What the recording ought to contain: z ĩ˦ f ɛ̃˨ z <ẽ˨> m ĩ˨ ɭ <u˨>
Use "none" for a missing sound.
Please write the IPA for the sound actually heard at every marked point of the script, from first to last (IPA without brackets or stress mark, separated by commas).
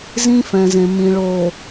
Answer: ẽ˨, o˨